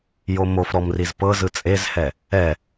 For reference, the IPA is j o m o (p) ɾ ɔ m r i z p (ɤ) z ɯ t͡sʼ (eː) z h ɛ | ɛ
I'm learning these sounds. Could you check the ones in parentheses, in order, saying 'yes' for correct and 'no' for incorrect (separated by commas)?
no, yes, no